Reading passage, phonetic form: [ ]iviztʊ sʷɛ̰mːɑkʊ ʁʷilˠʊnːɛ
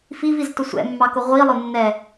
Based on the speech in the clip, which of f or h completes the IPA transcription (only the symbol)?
f